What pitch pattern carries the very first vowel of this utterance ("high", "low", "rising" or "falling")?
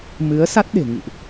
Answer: rising